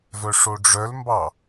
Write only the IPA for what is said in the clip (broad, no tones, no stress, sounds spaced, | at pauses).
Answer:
v œ ʂ o ɖ͡ʐ œ l m b ɑ